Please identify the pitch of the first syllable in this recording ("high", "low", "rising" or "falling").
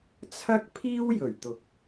high